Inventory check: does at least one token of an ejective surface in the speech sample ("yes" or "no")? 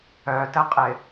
yes